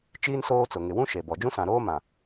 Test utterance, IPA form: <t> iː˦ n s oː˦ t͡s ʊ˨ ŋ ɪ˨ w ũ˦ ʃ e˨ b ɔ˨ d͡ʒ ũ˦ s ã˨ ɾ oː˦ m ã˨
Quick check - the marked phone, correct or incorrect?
incorrect